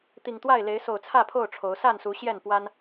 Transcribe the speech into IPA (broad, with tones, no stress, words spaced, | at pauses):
t̪i˨˩ŋt̪wa˥˨ɪ̯ le˨˦ɪ̯ so˨˩ʊ̯t͡sʰä˥˨pʰo˥˨ʊ̯ ʈ͡ʂʰo˨˦ʊ̯ sa˥˨nsu˨˦ ɕjɛ˥˨n pwa˦n